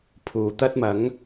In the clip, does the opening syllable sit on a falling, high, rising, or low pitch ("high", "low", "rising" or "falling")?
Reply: low